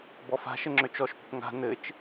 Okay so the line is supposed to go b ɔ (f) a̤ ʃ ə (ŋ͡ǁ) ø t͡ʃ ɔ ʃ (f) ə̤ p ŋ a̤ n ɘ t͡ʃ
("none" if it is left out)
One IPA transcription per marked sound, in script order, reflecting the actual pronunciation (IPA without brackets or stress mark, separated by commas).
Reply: f, ŋ͡ǁ, p